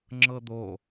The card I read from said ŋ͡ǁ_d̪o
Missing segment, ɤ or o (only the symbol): ɤ